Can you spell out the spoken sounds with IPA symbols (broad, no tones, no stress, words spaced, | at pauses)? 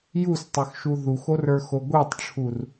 justˤə˞xʃu ðuxorə˞xo ɡʷetˤʈ͡ʂʰur